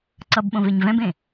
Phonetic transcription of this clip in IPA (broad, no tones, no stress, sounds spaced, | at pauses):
ǀ ʌ b ɓ õ v e ɲ v ɛ̃ b ẽ